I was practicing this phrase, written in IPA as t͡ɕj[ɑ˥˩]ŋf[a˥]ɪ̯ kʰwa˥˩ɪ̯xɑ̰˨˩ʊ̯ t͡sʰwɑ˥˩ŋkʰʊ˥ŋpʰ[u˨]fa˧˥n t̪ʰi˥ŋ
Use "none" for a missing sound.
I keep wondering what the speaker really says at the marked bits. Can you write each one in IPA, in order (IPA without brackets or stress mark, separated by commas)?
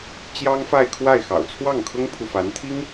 ɑ˥, a˥˧, u˨